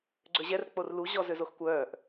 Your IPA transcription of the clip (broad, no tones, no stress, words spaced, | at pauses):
ɡ͡ǀøʑɛr k͡porlu ʑɔzøzoxkʷœːʔ